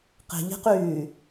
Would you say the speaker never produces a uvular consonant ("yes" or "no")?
no